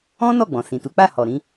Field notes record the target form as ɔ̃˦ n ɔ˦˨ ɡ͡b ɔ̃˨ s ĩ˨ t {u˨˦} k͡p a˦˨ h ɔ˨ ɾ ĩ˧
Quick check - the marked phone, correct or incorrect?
correct